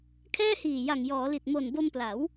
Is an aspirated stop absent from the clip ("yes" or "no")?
no